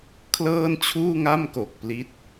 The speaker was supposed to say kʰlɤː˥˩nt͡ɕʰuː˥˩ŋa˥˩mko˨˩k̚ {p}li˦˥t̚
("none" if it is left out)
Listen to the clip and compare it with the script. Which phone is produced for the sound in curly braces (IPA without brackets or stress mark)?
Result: p